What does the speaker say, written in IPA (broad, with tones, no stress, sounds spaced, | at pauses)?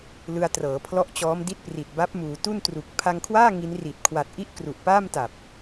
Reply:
l ɯ˧ a̯ t r ɤː˩˦ pʰ l ɔ˦˥ ʔ t͡ɕ ɔː˦˥ m d i˥˩ t̚ p r i˨˩ t̚ b a˦˥ p̚ m uː˩˦ t u˥˩ n t r u˨˩ k̚ pʰ a˧ ŋ kʰ w aː˥˩ ŋ i˦˥ n r i˨˩ t̚ kʰ w a˨˩ t̚ ʔ i˥˩ ʔ k r u˨˩ ʔ p aː˥˩ m t a˨˩ p̚